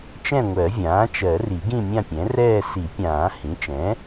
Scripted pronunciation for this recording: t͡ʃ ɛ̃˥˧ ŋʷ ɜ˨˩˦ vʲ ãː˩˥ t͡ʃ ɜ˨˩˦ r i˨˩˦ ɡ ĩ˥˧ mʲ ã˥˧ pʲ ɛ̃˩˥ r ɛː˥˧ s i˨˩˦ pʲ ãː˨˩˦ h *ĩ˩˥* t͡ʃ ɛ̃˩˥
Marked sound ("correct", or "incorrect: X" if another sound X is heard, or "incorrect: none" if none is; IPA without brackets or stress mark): correct